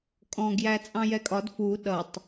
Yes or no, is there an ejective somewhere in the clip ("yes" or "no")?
yes